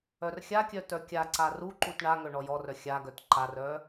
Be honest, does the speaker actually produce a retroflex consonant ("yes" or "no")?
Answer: yes